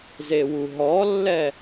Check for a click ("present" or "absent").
absent